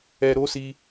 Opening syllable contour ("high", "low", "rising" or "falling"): low